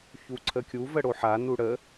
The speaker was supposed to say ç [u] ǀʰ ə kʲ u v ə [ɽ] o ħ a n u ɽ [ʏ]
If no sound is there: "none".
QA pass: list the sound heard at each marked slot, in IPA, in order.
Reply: u, ɽ, ə

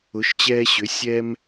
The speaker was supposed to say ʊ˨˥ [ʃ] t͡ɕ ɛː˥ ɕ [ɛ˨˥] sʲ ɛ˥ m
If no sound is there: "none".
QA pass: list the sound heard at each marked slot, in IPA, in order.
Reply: ʃ, ʏ˨˥

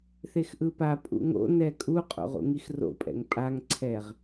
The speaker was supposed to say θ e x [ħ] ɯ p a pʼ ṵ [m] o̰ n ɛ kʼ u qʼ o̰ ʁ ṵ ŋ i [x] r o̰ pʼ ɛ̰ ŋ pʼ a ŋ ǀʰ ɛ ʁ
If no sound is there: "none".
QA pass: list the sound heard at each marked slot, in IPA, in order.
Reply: ʔ, ŋ, x

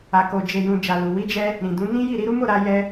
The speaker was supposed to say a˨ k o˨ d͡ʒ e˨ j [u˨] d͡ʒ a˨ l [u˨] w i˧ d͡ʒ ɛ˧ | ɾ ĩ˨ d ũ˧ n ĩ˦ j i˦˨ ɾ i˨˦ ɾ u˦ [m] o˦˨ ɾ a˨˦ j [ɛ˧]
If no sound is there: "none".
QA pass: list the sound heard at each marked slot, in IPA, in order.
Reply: ũ˨, u˨, m, ɛ˧

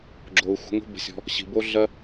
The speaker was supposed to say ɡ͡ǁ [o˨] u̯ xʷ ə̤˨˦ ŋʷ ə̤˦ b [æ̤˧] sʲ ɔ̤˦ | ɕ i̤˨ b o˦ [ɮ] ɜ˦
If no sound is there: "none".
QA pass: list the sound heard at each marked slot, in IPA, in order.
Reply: o˨, ə̤˧, ɮ

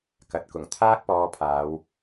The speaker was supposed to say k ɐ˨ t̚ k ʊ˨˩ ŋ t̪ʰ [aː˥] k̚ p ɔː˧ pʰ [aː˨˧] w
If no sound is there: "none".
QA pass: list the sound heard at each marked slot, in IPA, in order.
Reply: aː˥, aː˨˧

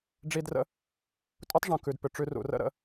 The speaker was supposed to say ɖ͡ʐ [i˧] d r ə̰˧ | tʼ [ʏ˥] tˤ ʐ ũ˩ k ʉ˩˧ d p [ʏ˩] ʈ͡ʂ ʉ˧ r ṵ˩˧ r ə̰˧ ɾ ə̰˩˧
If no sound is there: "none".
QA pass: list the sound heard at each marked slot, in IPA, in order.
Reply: i˧, u˥, ʏ˩

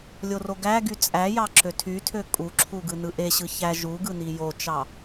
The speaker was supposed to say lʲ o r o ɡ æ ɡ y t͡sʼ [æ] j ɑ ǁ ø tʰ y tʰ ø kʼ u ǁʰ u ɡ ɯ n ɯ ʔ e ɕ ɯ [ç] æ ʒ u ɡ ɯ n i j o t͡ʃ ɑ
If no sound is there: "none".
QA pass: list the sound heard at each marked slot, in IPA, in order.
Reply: æ, ç

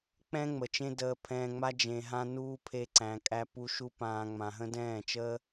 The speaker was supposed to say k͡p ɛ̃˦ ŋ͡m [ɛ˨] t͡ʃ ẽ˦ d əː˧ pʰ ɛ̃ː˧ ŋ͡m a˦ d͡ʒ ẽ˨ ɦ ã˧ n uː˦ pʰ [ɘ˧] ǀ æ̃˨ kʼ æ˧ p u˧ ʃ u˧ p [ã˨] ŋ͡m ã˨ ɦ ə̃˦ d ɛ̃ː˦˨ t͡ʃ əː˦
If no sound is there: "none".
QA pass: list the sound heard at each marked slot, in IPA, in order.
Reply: ə˨, e˧, ãː˨

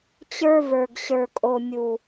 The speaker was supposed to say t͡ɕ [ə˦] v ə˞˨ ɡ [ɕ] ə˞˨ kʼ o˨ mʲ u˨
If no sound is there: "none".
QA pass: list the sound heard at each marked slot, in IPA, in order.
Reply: ə˞˦, ɕ

